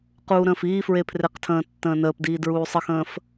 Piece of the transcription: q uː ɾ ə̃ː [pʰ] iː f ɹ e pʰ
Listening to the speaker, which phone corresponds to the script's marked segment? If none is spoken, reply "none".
f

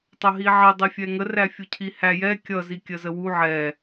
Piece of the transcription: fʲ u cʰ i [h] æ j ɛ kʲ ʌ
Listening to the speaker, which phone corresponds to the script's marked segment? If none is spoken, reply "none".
h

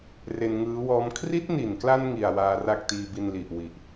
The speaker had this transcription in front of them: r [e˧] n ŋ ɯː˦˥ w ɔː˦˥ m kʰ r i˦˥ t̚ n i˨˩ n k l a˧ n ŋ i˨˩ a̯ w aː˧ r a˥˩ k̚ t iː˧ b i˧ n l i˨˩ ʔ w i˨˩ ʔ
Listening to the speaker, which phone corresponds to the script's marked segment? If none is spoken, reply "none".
e˧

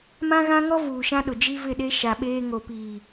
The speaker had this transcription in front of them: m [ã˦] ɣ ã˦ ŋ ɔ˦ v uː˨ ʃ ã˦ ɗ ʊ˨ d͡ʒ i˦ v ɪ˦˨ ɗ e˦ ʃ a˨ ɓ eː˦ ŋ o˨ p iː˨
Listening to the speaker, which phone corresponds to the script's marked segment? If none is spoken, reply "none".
ã˦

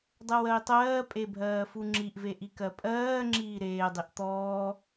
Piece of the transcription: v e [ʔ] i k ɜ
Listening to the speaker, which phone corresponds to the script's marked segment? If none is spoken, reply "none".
ʔ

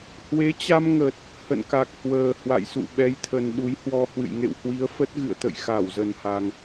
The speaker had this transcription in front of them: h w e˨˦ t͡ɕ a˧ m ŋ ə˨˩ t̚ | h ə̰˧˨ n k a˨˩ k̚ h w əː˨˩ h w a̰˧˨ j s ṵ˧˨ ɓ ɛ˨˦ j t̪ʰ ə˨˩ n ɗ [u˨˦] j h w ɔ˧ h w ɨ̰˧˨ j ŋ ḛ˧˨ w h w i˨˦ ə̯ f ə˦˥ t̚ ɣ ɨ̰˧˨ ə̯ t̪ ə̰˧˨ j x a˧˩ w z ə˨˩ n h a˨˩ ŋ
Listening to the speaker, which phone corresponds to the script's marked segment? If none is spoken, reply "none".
u˨˦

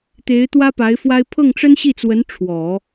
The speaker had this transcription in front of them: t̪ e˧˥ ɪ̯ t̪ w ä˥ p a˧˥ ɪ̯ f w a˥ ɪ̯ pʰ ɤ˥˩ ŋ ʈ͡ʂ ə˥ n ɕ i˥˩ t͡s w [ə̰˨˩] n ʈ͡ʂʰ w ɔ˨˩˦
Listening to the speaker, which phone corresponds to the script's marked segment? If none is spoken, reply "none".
ə˧˥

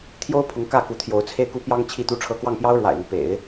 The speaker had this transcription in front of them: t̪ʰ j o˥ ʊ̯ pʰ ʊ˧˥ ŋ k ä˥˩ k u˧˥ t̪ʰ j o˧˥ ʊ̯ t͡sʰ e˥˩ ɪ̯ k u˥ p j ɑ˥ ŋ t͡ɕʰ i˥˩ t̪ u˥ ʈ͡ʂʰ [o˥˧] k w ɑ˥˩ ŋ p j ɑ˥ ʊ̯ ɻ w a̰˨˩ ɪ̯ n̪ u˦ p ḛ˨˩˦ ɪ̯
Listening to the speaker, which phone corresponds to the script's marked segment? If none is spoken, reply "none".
ɤ˥˧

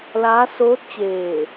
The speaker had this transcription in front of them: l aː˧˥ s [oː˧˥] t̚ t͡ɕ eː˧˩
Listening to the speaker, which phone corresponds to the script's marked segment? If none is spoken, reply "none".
oː˧˥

